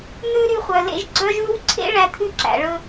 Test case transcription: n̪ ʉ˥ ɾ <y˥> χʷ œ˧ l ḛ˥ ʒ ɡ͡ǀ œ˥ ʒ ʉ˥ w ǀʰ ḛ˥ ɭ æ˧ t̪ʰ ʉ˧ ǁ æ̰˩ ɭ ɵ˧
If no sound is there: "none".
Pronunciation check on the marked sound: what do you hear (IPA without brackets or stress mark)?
y˥